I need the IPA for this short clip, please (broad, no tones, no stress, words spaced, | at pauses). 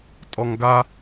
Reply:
tʼɔŋɡa